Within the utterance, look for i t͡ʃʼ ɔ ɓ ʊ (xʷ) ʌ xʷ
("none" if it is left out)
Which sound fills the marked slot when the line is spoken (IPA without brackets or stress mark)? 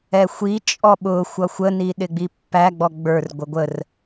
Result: xʷ